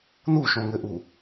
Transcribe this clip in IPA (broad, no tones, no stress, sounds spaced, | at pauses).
n u ʃ õ ŋ ɘ ʔ u